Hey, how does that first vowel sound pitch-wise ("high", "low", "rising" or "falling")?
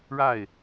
falling